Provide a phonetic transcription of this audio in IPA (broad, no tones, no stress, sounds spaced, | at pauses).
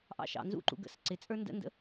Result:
ʔ ɑ̰ ʃ ɑ̰ n z ṵ ǃ ṵ ɡ ə̰ s ǀ ɪ t͡sʼ ə˞ n d ə̰ n d ə̰